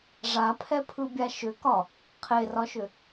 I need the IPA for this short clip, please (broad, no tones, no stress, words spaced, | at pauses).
ʐapʰɛpʰɯbʲa ʃʏkɒ | qʰerɒʃʏ